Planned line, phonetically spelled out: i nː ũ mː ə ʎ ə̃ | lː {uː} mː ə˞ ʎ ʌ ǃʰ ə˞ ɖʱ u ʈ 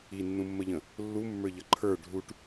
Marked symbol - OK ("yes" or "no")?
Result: no